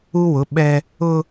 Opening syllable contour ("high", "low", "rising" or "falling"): high